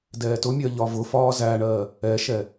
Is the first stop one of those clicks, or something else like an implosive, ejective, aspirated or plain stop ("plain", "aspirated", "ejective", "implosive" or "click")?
plain